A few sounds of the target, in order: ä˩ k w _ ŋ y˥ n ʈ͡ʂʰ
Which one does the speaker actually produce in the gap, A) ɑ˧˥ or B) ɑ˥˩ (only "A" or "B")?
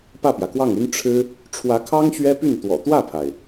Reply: B